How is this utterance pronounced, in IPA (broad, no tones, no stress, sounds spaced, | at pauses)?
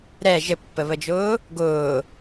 ɾ ɛ ʒ ɘ pː ə β ə d͡ʒ ʊː | ɡ ʊː